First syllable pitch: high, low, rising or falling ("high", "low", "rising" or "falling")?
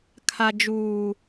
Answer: low